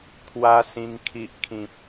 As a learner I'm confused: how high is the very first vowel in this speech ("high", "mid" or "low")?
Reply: low